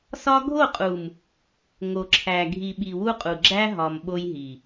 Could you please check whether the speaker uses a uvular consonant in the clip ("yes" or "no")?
yes